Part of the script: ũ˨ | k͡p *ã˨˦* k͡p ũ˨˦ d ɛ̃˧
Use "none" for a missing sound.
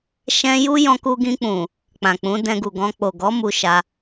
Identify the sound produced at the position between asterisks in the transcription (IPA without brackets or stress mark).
ã˨